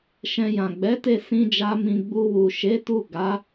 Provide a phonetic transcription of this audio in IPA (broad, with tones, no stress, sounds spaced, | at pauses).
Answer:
ʃ ɛ̃˧ j ã˨ ɡ͡b ɛ˨˦ t e˧ s ĩ˦ d͡ʒ a˦ m ĩ˧ ɡ͡b u˧ w u˨ ʃ e˨˦ t u˦˨ ɡ a˨˦